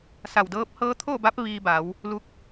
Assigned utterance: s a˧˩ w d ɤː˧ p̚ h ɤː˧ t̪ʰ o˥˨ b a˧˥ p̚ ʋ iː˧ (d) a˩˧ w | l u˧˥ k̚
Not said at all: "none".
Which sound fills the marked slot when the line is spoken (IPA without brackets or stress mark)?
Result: b